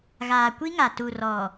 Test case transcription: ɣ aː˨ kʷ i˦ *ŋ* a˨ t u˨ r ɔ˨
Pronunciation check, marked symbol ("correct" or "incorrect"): correct